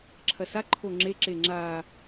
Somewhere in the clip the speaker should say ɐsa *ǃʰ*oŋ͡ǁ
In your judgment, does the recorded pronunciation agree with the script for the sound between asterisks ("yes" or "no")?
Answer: yes